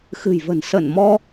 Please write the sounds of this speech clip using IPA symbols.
x ɨ̤˨˩ j v ə̤˨˩ n s ə˧˩ n m ɔ˧

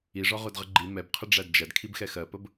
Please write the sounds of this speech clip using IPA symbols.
i ʐ ɒ ʁ ʊ d ʁ ə ɡ͡ǃ i m ɛ b qʰ ə ɖ͡ʐ æ d d͡ʒ æ d kʰ i b x ɛ x ɜ p ə b

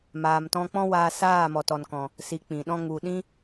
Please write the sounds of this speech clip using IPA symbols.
m aː˨ m t ɔ̃˧ k͡p ɔ̃˦ w aː˧ s aː˦˨ m ɔ˨ t ɔ˨ n k ɔ̃˨ | s i˧ k͡p ĩ˨ ɗ ɔ̃˧ ŋ u˨ ɗ ĩ˦

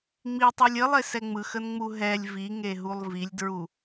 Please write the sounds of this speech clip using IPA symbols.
ŋ͡m i tˤ i lʲ ə lˠ e s ɛ ŋ͡m ɯ x ə n ŋ͡m u ɦ ɛ lʲ v i ŋ e ɦ u lˠ v i lʲ d ɹ u

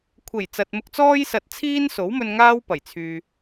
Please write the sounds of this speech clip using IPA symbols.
kʷʰ e˨˩ j t͡s ɐ˨ t̚ m ʊ˧ k̚ t͡s ɔː˥ j s ɐ˧ t̚ t͡sʰ iː˥ n s o˨˥ w m ɵ˧ n ŋ aː˥ w p ɐ˨˩ j t͡sʰ yː˨

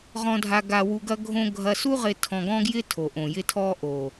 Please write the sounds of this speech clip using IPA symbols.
ʁ ɔ̃˨ dʱ a˨ ɡ a˨ w u˨ ɡ ɐ˦ ɡʱ õ˦ ɡʱ ɐ˨ s u˦ ʁ ɪ˨ tʰ ɔ̃˨ ɡ ɔ̃˦ ɡ j ɪ˦ tʰ o˨ ʔ õ˨ j ɪ˦ tʰ ɔ˦ ʔ o˨

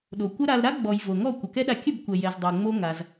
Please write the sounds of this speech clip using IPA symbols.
ɗ o˨ kʷ ə˦ ɾ a˧ l ɾ a˦ ɡ͡b ɔ˨ j v o˨ ŋ ɔ˦˨ kʷ ə˨ k ɛ˦ ɗ a˧ kʲ ə˦˨ b kʷ ɛ˨ j ɛ˨ z dˤ o˨ ŋ͡m o˦ ŋ a˧ z

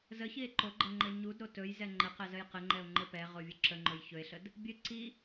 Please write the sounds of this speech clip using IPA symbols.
z ə ç i e̯ ǃ o ɡ͡ǃ ə ŋ͡ǃ ɘ ɲ u d ɾ o t ɵ j z ɛ ŋ͡ǃ ə q ɛ z ə j q ɘ ŋ͡ǃ ɛ o̯ ŋ͡ǃ ɘ p ɛ ʁ o vʲ u ǁ ə ŋ͡ǃ ɵ j ç ɵ e̯ ɬ ə d | bʲ ɘ ǀ i

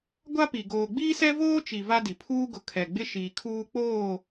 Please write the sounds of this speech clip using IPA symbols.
ɡʷ a˦ p i˨ ɡ oː˨ ɡ͡b iː˦ s ɛ˦ v oː˦ t͡ʃ i˨ v a˦ d i˨ pʰ uː˦ ɡ ʊ˨ kʰ ɛ˨ ɡ͡b ɪ˦ ʃ iː˨ kʰ uː˦ k͡p oː˦˨

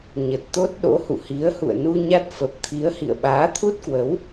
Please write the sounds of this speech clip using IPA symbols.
ɲ ə˨˩ t̚ t̪ o˦˥ t̚ ɗ o̰˧˥ h ṵ˧˨ h i˨˦ ə̯ h ṵ˧˨ ə̯ n u˧ ɲ a˦˥ t̚ f ə˨˩ p̚ t̪ʰ i˨˦ ə̯ h ḭ˧˨ ə̯ ɓ aː˨˦ t̪ʰ u˦˥ t̚ k w ə˨˦ w

